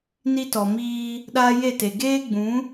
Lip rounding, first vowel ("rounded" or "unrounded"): unrounded